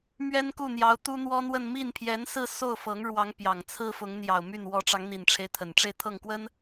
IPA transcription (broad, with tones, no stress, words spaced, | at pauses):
mɥɛ˥nku˥˩n̪jɑ˧˥ʊ̯ t̪u˥n̪wɔ˥n̪wə˥˧n mi˥˩n pʰjɛ˧˥nsɹ̩˥˧ so˥˩ʊ̯fɤ˧˥ŋɻwɑ˧˥ŋ pjɑ˨˩ŋt͡sʰɹ̩˥ fʊ˧˥ŋn̪jɑ˨˩ʊ̯my˥˩n wɔ˧˥ ʈ͡ʂɑ˧˥ŋn̪i˨˩nʈ͡ʂʰe˦ɪ̯ t̪ʰə˨˩nʈ͡ʂe˥˧ɪ̯t̪ʰɤ˥˩ŋkwə˥n